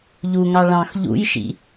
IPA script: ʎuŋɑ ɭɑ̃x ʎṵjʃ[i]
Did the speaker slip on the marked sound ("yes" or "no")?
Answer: yes